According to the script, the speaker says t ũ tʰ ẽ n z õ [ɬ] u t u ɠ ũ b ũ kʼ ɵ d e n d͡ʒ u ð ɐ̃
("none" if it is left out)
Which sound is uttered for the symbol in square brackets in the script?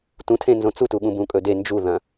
t͡s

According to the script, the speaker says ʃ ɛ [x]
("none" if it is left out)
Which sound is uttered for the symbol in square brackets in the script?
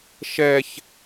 ç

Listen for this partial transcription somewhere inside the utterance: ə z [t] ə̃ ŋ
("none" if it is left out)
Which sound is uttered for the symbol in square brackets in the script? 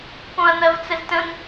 t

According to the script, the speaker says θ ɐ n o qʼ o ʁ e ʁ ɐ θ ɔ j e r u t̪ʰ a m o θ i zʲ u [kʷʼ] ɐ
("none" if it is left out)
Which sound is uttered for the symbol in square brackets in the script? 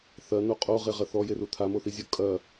kʼ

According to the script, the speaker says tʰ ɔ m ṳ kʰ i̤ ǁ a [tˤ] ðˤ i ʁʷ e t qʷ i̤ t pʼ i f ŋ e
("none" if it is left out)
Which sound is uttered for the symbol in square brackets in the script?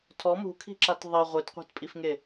t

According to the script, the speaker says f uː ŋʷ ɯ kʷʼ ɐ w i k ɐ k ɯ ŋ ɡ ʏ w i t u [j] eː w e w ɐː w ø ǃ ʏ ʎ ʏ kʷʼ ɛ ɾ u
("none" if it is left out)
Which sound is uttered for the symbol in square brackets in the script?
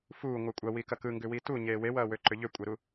ɲ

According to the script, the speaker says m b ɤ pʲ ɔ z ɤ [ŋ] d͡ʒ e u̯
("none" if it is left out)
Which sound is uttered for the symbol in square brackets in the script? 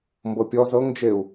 ŋ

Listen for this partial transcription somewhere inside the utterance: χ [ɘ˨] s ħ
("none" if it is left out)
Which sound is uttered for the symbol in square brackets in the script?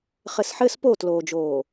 ɘ˨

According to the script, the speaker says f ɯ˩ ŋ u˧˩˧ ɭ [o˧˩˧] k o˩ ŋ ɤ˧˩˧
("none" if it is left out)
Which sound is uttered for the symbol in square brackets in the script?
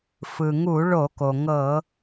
o˧˩˧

